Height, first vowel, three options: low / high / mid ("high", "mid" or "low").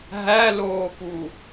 low